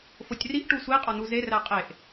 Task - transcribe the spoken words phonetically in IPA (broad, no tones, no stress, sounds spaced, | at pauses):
f o tʲ r i ʔ ʈ u sʷ i qʼ ɒ n u z e r æ qʼ e ʔ